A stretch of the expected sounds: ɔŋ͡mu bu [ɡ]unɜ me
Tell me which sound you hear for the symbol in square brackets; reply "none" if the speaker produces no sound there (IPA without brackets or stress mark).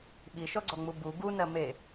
ɡ